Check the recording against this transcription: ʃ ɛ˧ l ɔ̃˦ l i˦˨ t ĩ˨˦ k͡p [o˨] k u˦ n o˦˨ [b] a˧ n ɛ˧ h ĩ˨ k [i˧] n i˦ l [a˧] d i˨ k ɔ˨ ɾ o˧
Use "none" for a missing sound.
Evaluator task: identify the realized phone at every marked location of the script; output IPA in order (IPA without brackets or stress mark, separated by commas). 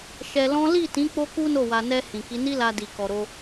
o˦, w, i˨˦, a˧